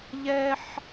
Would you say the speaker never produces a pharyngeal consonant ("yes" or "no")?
no